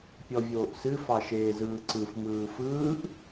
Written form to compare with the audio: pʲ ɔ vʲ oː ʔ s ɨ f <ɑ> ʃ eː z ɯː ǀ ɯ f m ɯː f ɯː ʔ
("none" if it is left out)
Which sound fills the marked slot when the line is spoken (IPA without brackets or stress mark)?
ɑ